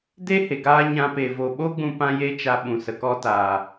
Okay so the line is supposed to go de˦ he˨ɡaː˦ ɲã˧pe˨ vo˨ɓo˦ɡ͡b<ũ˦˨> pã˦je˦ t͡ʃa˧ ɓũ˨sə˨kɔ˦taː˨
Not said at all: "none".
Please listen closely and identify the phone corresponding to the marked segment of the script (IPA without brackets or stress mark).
ũ˧